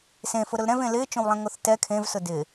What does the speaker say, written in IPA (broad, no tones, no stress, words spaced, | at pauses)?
sẽfʊ ɾʊlɾɛ̃v ẽlɪːt͡ʃõwlˠɛ̃ ŋoθtɛ kʰẽvsʊ dɪ